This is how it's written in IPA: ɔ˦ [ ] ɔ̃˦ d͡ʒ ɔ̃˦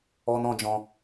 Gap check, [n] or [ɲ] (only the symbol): n